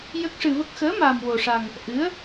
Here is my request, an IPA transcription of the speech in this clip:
j ə˦˥ k̚ ʂ ɨ˧ v ə˦˥ k̚ x əː˧˥ m aː˧ m w o˧ ʂ a˧ ŋ | ʔ ɨ˧˥ ə̯

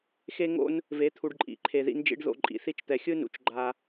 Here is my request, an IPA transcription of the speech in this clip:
x e˥ ŋ o̰˥ n | v e˧˥ t̪ʰ u˧ ɖ ǃʼ ḭ˩˧ ǃʰ e˧ ð ḭ˧˥ n d͡ʒ ḭ˧˥ ɖ ð o̰˧ ǃʼ ḭ˩˧ θ i˥ t͡ʃ t̪ ɛ˧ xʲ ɯ˥ n ṵ˩˧ t͡ʃ ɡ͡ǃ a˧

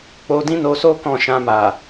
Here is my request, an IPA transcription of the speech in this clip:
k͡p o˧ d ĩ˦ n o˧ s o˦ k ɔ̃˦˨ ʃ ã˧ m a˨

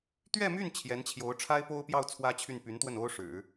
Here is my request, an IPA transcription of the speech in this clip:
t̪ ɥ ɛ˥˧ m y˥˩ n t͡ɕʰ j ɛ˧˥ n t͡ɕʰ j o˧˥ ʊ̯ ʈ͡ʂʰ a˥ ɪ̯ p o˥ ʊ̯ p j ɑ˥˩ ʊ̯ t͡sʰ w ä˥ t͡ɕʰ y˥˩ n p y˧˥ n t̪ w ə˥˩ n o˥ ʊ̯ ʂ ɻ̩˨˩˦

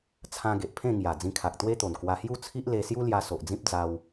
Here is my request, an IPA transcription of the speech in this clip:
t͡sʰ ã˧ ɡ e˨ ʔ pʰ ẽ˥˧ ŋ j a˨˩ d͡z ĩ˧ kʰ a˨ k̚ t̪ w e˦ t̪ o˨˩ n k w a˧ h j u˥˧ t͡sʰ i˦ ʔ l e˧ s j u˦ l j a˧ s o˨ ʔ d͡z ĩ˦ p̚ d͡z a˧ w

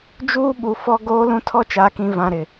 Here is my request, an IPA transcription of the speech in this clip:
d͡ʒ uː˦ ɓ u˨ f ɔ˦ ɡ oː˦ l ũ˦ tʰ ɔ˦ t͡ʃ aː˨ k ĩ˨ v ã˨ ɾ ɪ˨

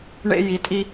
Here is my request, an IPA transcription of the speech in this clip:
ɳ ḛ˦ j i˨˥ tʼ i˦

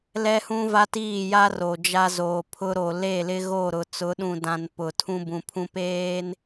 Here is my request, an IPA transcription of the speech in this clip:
l ɛ˦ h ũ˦ v a˦ t iː˦˨ j a˦ r o˨ d͡ʒ a˦ z oː˨ pʰ ʊ˦ ɾ o˨ l e˦˨ l ɪ˦ ɣ o˦˨ ɾ ʊ˨ t͡s ʊ˨˦ ɗ ũ˨ d ã˨ n p ʊ˨ tʰ ũ˦ b ũ˨ pʰ ũ˦ p eː˦ n

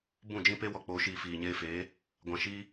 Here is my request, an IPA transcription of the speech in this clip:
b ũ˦˨ d͡ʒ ĩ˦ p e˦ w ɔ˧ k͡p oː˧ ʃ iː˧ f iː˨ ɲ eː˧ f eː˨˦ | ɡʷ ã˨ ʃ iː˦

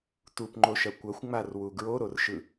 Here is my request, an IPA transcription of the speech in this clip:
t u p ŋ͡ǃ o ʃ ɐ kʷ ɐ xʷ ŋ͡m a r w u ɡ ɹ o ɾ o r ʃ ɯ

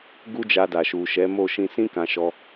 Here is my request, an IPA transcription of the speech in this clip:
ɡ u˦ d͡ʒ a˧ d a˨ ʃ u˨ ʃ ɛ˨˦ m o˦˨ ʃ ĩ˧ s ĩ˦ k ã˧ ʃ ɔ˧

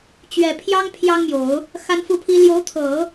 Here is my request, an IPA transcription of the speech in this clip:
t͡ɕ ɥ ɛ˨˩ pʰ j ɑ˥ ŋ pʰ j ɑ˥ ŋ m j o˨˩˦ ʊ̯ | x a˥ n f u˥˩ pʰ i˥ l j o˧˥ ʊ̯ t̪ʰ ɤ˨˩˦

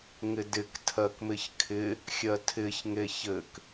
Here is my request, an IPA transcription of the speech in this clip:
ŋ ɪ d ɪ k tʰ ɜ k m ɪ ç kʰ ɪ | xʲ ɜ tʰ ɪ ç ŋ e ç ɘ k

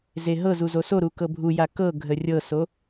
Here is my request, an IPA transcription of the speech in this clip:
z e ɦ ɤ z u z o s o ɾ u k ɤ bʱ u j a k ɤ ɡʱ ə rʲ ɤ s o

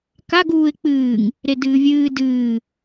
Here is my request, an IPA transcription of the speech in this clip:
k a ɡ uː ɪ̯ k͡p ɨː ŋ | ɾ e d ɨː vʲ ɨː d ɨː

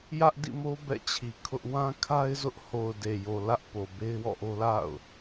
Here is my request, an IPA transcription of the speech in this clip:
j ä˦ ʔ d ḭ˦˨ m o˦ b ɛ̰˦˨ t͡ɕʰ i˨ kʰ ʊ˦ ʔ w ã˦ kʰ a˦ ɪ̯ z ʊ˦ ʔ h o˨ ʊ̯ d e˨ j o˨ l ä˦ ʔ p o˨ b e˦ ɪ̯ w ɔ̰˦˨ ʔ o˦ l a̰˦˨ ʊ̯

